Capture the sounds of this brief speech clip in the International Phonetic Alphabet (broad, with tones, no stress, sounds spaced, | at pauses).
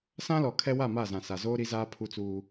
s ã˦ l ɔ˨ kʰ ɛ˦ w a˦˨ m a˦˨ z ã˨ s a˨ z oː˦ ɾ i˦ z aː˦ pʰ u˦ t͡s uː˦